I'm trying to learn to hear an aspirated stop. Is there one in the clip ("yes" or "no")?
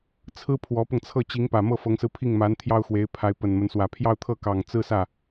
yes